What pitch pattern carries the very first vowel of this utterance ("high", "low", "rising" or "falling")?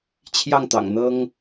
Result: falling